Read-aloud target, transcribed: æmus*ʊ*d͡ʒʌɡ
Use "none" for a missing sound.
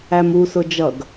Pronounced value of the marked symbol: ʊ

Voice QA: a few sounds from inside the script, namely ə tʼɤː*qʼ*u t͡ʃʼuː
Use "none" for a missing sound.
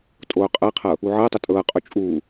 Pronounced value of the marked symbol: qʼ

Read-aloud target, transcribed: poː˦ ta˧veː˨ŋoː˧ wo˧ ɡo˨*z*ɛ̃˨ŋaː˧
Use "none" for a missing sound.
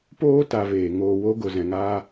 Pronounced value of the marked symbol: z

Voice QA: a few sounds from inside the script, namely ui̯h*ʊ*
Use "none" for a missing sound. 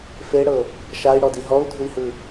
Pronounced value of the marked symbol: ɯ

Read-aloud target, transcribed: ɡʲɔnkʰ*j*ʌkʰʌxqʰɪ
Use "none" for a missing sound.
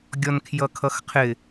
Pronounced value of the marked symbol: j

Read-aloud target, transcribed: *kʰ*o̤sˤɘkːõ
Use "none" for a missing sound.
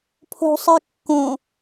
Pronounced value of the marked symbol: pʰ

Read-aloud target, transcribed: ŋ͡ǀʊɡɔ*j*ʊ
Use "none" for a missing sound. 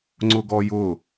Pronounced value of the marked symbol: j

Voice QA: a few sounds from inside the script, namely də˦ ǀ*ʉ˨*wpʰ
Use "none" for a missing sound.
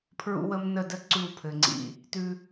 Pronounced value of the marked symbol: ʉ˦˨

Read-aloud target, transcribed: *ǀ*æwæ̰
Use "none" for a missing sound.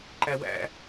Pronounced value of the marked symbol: ǃ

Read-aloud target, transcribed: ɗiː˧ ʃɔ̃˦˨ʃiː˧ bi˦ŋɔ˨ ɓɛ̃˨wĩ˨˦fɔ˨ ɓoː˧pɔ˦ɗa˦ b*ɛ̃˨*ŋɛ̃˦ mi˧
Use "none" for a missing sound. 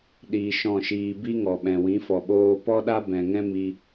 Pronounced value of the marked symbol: ɛ̃˨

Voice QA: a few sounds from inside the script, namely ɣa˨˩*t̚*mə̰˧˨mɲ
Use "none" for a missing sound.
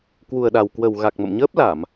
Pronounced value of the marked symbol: k̚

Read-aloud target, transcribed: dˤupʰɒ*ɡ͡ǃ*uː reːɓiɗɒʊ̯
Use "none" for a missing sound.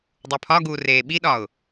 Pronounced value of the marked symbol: ɡ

